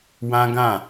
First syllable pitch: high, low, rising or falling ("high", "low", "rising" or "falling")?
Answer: high